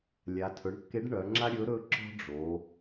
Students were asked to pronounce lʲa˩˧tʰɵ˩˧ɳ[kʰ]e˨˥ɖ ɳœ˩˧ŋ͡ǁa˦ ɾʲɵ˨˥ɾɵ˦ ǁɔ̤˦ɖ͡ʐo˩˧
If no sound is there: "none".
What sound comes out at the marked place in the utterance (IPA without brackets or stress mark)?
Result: kː